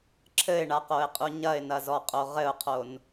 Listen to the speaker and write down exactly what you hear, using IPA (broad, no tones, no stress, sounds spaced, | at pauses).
ǁʰ ɘ ɪ̯ ɳ a q o ɪ̯ qʼ u ɲ ɐ ɪ̯ n ɐ z ɔ qʼ o ʁ ɘ ʊ̯ qʰ o n